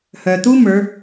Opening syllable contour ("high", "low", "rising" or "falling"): low